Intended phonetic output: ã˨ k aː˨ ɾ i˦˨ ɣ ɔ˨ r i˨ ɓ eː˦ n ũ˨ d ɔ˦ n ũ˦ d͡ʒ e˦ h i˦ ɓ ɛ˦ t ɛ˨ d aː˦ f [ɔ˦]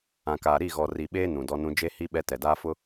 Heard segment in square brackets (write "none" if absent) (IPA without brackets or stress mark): ʊ˦